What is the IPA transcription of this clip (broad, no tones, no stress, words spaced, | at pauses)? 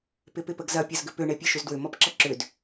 pɪpɪpəɡzɐ pʲɐzɡʏpʏ ɳepʲeʃʏzdwʏ mɔpǁʌǁʏd